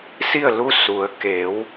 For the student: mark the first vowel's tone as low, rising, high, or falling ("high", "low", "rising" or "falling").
falling